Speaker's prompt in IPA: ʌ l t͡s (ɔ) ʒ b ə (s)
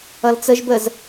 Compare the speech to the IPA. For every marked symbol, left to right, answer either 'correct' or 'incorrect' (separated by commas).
incorrect, incorrect